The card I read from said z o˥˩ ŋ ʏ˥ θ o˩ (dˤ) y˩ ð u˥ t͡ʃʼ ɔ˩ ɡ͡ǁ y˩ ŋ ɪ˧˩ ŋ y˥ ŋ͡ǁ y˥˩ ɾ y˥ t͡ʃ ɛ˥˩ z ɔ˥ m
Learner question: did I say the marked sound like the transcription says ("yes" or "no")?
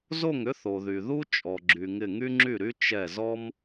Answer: no